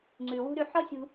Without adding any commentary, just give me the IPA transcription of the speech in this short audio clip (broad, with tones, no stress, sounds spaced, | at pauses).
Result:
ŋ͡ǀ ʉ˩ w ṳ˥ ɾ ʉ˧ ħ ɔ˥ sʲ ṳ˧